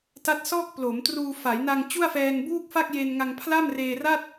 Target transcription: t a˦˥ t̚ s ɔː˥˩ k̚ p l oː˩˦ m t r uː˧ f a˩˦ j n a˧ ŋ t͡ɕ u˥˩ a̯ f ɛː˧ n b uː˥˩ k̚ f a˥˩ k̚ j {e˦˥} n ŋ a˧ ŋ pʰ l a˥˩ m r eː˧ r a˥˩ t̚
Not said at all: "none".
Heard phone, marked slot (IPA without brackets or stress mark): e˧